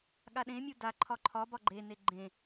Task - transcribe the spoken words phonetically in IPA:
ɠ a ɗ ẽ mʲ u d a ǃʰ ɒ ǃʰ ɒ b ɒ ɡ͡ǃ e n e ɡ͡ǃ ẽ

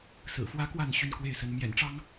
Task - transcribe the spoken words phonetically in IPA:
s ɹ̩˨˩ f w ä˥ k w a˥˧ n ɕ y˥˧ n k w e˥˩ ɪ̯ s ə˧˥ n m j ɛ̰˨˩ n ʈ͡ʂ ɑ˥ ŋ

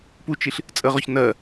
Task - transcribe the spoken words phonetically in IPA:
p u t͡ʃ i ɬ | t͡sʼ ə ʁ ɔ ç n ɜ

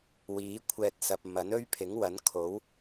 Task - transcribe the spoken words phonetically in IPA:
w iː˨˥ kʷʰ ɛː˧ t̚ s ɐ˨ p̚ m ɐ˨˥ n ɵ˥ ɥ pʰ ɪ˨˥ ŋ w ɐ˨˥ n kʰ o˨˥ w

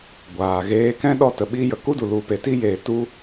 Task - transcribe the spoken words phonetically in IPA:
ɡʷ aː˨ ɣ eː˧ k ɛ̃˦ ɗ ɔ˦ t ə˨ ɓ iː˦ j ə˨ k u˦ d u˨ l u˨˦ p e˨ t i˦ j eː˨ t u˦

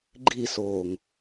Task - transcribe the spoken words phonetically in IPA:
ɡ͡ǃ i s oː ŋ

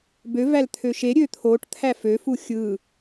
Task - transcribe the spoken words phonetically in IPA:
b ø v æ l t̪ʰ ø ʃ e ɾʲ ø t̪ʰ o ʈ t̪ʰ æ f ø f u xʲ ɯ

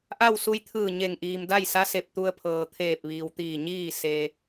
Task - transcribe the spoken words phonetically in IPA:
ʔ a˥˨ w s u˧ j t̪ʰ ɯː˧˩ ɲ e˧˩ ŋ ʔ iː˩ m d a˥˨ j s a˧˥ s e˧˩ p̚ t̪ u˧ ə̯ pʰ ɤː˩ t̪ʰ eː˧˩ p̚ ʋ iː˩ w t̪ iː˧˩ ɲ iː˥˨ s e˧

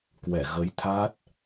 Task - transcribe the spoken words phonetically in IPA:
k w ɛ˧˩ ɣ ə˨˦ j t̪ʰ a˦˥ t̚

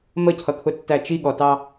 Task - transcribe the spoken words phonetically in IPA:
m ə cʰ ʌ kʰ ʊ tː æ t͡ʃ i ɠ ɔ t ɑ

